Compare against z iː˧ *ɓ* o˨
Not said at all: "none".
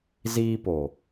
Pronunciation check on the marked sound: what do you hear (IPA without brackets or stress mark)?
p